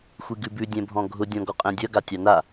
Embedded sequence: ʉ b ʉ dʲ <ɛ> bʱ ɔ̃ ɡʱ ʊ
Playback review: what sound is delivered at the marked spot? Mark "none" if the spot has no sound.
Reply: ɛ̃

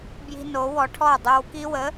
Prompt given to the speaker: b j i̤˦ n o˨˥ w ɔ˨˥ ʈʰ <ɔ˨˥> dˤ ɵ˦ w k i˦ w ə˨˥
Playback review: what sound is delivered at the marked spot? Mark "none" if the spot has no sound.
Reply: ɔ˥˩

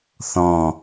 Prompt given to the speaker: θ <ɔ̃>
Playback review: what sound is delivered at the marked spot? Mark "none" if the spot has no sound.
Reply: ɔ̃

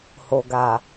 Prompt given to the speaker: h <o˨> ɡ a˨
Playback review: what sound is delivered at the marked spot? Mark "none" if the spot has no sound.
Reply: o˨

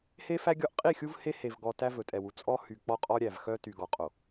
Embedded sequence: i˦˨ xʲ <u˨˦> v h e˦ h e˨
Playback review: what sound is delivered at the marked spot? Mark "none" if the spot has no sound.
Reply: u˦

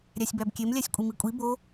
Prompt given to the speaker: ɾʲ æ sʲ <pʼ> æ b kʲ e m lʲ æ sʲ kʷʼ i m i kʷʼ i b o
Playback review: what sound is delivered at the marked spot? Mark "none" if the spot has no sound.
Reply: b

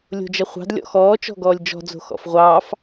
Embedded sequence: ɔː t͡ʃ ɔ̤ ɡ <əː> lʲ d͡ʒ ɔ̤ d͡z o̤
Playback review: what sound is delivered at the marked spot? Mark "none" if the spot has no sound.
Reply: ɔː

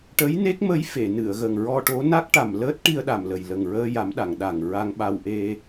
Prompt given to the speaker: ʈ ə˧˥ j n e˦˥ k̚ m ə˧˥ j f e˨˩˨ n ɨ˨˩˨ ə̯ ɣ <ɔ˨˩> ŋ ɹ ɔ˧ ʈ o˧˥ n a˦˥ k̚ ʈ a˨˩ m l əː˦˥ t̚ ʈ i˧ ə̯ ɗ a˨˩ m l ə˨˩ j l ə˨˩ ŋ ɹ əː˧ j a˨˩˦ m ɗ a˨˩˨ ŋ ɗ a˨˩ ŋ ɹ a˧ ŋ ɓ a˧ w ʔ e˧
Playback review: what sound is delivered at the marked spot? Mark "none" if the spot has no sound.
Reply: ə˨˩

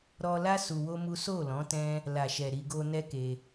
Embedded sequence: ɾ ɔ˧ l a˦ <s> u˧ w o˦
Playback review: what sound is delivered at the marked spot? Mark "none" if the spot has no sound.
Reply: s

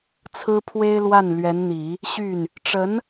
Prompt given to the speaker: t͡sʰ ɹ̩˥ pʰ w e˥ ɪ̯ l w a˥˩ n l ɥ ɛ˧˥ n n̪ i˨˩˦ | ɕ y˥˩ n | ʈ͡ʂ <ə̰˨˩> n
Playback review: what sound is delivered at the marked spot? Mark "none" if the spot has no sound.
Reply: ə˧˥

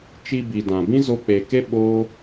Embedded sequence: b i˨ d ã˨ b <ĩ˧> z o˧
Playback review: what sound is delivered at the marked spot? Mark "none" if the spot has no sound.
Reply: ĩ˦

